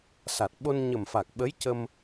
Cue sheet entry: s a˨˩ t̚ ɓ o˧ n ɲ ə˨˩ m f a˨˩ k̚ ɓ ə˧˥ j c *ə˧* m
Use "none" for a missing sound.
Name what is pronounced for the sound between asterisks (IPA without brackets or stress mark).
ə˧